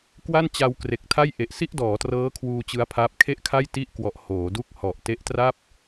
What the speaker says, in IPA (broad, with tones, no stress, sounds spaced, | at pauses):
k w a˥˩ n t͡ɕ a˧ w k r e˨˩ k̚ tʰ a˥˩ j ʔ e˨˩ ʔ s i˥˩ ʔ d ɔː˩˦ t r ɤː˦˥ kʰ w uː˧ t͡ɕ ɯ˦˥ a̯ pʰ aː˦˥ p̚ kʰ e˥˩ ʔ kʰ a˥˩ j t i˥˩ ʔ k w ɔ˨˩ ʔ h oː˩˦ d u˥˩ k̚ h ɔ˨˩ ʔ t e˦˥ ʔ t r a˥˩ p̚